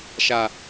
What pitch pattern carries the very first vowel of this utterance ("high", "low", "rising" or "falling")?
low